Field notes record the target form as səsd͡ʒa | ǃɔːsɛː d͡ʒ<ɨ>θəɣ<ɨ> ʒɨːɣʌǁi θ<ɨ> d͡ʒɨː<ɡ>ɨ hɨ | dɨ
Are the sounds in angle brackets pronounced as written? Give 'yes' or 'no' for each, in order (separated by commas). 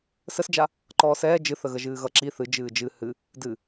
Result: yes, no, yes, no